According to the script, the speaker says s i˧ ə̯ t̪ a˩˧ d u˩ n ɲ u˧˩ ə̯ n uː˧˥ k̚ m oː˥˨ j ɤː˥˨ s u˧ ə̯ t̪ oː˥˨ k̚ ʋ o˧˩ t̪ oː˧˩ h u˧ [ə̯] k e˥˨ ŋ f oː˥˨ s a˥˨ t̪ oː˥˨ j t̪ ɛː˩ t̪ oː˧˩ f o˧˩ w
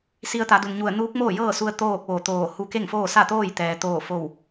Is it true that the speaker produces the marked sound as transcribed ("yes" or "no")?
no